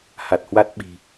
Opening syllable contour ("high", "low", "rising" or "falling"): low